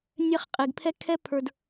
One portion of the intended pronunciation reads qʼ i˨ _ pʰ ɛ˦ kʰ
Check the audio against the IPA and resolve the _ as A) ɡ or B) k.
A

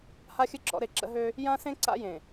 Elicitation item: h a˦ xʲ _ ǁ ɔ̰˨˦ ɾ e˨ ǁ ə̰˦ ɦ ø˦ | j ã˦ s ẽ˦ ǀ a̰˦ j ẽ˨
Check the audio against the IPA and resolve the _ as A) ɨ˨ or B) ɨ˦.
B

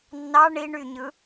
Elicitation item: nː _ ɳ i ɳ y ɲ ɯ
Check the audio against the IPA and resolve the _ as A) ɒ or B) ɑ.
B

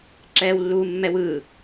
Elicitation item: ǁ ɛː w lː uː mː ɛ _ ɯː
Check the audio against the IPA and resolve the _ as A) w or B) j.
A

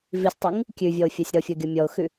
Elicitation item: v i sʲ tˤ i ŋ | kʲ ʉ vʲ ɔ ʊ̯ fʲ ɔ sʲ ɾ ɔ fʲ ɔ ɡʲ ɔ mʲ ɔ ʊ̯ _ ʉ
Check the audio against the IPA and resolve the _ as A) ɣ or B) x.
B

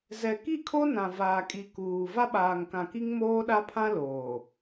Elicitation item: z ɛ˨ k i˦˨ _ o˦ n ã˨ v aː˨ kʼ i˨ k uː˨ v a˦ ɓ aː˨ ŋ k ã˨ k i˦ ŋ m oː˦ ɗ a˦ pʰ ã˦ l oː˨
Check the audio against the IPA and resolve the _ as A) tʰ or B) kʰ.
B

